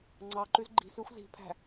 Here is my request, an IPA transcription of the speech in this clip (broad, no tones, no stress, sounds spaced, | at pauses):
ŋ͡ǀ ɑ ǃ ʉ z ɡ͡ǃ i̤ s ʉ xʷ z i̤ pʰ æ̤